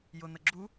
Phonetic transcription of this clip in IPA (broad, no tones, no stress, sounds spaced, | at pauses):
j ʊ n̪ ə ɡ͡ǁ u